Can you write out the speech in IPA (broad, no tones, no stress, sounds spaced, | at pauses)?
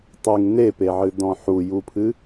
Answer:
tˤ ɨ ŋ n e p e ʕ ɨ d ɔ̃ ħ u j u pʰ ɨ